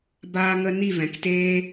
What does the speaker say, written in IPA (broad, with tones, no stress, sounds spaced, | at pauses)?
b aː˧ ŋ ə˧ n i˦˨ v ɛ̃˨ k t eː˦